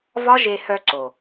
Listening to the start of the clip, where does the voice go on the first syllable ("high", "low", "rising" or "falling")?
high